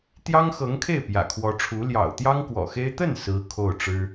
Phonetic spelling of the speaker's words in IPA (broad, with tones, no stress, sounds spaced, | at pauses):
t̪ j ɑ˥ ŋ x ɤ˧˥ ŋ kʰ e˥˩ ɪ̯ p j ä̰˨˩ kʰ w ɔ˧˥ ʈ͡ʂʰ u˧˥ l j ɑ̰˨˩ ʊ̯ t̪ j ɑ˥ ŋ k w ɔ̰˨˩ x e˥ ɪ̯ t̪ ə˥˩ n s ɹ̩˥ kʰ o˥˩ ʊ̯ ʈ͡ʂ ɻ̩˥